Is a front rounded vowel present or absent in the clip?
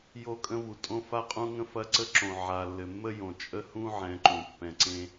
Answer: absent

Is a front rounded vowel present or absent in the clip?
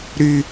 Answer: present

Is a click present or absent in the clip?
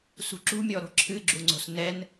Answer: present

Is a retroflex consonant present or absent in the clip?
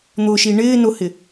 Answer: present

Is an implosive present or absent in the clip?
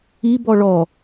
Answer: absent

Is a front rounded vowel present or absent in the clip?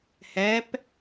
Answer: absent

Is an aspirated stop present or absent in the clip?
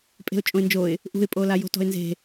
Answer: absent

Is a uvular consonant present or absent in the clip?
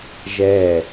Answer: absent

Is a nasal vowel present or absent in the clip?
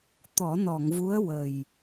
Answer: absent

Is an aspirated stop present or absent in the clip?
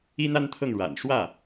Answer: present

